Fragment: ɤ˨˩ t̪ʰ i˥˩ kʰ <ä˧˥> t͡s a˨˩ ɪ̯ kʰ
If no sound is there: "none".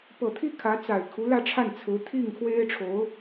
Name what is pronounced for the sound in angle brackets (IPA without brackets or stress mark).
ä˧˥